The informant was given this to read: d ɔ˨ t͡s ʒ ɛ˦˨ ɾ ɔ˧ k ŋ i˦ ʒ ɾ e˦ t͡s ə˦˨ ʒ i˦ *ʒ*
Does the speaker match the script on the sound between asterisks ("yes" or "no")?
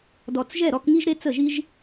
yes